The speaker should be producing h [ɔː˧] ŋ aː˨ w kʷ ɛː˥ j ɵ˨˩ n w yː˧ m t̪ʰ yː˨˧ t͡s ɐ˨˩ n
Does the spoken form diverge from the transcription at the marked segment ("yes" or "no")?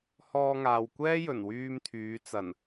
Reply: no